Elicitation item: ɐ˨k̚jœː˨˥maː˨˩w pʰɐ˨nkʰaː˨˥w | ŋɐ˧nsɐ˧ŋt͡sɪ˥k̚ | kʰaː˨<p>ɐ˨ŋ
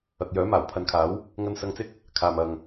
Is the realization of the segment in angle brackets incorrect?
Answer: yes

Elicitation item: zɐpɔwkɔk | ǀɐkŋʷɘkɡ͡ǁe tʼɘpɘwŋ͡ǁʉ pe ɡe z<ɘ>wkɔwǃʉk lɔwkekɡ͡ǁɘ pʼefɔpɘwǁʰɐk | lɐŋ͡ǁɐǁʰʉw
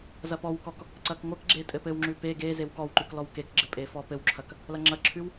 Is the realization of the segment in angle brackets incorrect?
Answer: yes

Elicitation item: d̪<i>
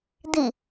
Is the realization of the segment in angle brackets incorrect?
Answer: no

